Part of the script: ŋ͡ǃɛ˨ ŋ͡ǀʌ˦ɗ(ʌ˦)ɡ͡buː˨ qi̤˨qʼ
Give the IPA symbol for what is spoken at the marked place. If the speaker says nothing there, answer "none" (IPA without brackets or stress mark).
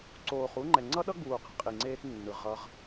ʌ˦